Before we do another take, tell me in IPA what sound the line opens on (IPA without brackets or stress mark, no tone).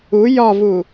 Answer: u